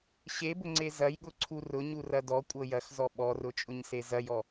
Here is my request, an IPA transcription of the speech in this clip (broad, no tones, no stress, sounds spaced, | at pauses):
ɕ e b ʊ ŋ͡ǀ e z ɐ j ɠ ʊ ǀʰ u r ʊ ɲ u r ɐ d ɔ kʷʼ ɤ j ɐ x z ɔ ɓ ɔ r ʊ t͡ʃʼ ʊ ɲ s e z ɐ j ɔ